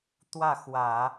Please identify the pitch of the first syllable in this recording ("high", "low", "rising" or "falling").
falling